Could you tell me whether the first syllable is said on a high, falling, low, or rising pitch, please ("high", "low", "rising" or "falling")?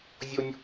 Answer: high